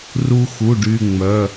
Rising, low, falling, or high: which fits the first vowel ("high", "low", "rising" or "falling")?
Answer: high